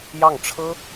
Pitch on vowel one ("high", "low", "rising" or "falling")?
falling